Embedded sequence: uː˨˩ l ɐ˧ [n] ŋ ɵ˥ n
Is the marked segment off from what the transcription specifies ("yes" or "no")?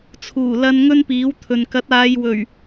no